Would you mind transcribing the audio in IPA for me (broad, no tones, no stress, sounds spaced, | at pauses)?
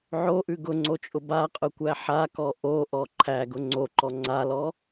ʕ o ʔ ʉ ɡ ʊ ŋ͡ǀ o t͡ʃʼ ʊ b a qʼ ʊ kʷ æ ħ a k ɔ ʔ o ʔ ɔ ǃʰ æ ɡ ʊ ŋ͡ǀ o ǃ ɔ ŋ͡ǀ a l ɔ